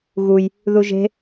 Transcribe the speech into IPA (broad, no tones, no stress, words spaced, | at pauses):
ɣuj | ðuʒe̤